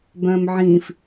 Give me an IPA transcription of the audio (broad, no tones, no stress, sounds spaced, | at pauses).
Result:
b œ̃ː m ʕ ĩː f